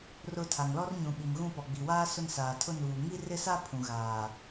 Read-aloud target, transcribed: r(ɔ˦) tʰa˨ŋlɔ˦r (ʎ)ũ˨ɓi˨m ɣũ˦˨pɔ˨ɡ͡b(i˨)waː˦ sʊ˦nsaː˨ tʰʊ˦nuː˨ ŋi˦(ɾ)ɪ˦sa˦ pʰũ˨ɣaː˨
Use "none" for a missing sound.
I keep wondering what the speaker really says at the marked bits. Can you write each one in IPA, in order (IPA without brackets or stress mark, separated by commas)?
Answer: ʊ˦, ɲ, i˨, r